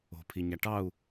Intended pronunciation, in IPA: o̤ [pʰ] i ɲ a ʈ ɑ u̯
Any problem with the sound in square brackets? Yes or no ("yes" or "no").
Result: no